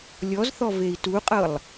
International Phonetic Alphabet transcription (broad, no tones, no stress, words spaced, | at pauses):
lʲɔzθɔ vei̯tuqʼɤlˠ